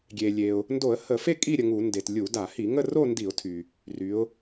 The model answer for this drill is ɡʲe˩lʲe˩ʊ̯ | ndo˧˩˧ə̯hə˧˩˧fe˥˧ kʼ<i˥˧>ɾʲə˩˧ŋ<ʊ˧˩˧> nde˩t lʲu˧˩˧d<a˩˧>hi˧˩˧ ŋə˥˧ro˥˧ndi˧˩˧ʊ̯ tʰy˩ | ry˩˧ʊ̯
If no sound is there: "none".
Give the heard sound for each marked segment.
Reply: i˥˧, u˧˩˧, a˧˩˧

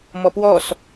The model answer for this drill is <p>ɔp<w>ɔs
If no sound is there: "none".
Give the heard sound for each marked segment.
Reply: m, w

